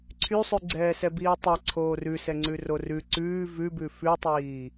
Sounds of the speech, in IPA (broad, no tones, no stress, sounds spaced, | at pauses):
ǀʰ y sˤ ʉ ɡ͡ǀ ɛː s ɛ b iː tˤ ɛ ǀʰ oː r ʉ s ɛ ŋ͡ǀ ʉ r o r ʉ ǀ ʉː v ʉ b ʉ f ʉ tˤ iː